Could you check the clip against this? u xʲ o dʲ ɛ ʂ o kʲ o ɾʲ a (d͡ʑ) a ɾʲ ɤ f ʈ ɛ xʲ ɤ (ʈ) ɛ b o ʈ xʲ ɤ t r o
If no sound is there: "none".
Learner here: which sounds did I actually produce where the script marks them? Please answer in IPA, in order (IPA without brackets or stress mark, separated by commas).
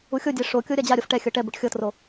d͡ʑ, ʈ